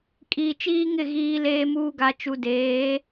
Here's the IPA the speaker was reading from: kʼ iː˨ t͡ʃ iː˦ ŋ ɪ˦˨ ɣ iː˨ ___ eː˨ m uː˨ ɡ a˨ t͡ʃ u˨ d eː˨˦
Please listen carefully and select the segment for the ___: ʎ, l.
l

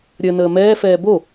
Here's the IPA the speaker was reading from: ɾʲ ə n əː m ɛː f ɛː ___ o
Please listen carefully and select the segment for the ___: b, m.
b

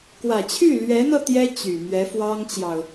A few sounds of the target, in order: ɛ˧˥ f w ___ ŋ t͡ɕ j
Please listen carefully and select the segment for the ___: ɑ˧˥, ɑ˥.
ɑ˥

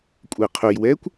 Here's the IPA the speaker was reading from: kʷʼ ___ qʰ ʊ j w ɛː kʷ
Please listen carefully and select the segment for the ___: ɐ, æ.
æ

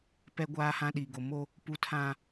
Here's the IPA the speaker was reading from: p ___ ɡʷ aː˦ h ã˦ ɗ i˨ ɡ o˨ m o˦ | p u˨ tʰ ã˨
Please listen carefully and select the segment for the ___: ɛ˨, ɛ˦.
ɛ˦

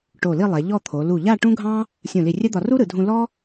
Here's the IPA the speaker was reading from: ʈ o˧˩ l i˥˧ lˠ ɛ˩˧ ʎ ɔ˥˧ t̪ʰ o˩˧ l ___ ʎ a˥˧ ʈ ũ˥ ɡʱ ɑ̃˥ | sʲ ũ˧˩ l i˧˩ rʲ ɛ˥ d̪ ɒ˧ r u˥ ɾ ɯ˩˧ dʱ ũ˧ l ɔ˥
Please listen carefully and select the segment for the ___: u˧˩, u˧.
u˧˩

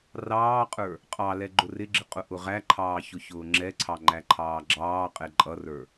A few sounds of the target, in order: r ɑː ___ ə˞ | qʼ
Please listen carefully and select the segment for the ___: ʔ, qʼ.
qʼ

